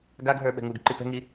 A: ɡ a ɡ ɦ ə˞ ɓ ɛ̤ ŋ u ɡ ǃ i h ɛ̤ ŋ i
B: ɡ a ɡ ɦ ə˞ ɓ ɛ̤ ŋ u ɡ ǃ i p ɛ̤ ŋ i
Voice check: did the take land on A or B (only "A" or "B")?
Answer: B